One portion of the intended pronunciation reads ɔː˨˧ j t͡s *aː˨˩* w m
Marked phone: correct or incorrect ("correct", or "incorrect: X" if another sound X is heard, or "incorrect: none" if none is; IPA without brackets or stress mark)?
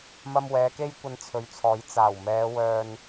correct